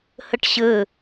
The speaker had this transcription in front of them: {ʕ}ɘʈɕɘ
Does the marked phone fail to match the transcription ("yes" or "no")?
yes